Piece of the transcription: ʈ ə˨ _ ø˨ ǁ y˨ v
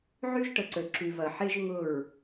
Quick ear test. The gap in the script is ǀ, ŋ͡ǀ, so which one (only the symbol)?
ǀ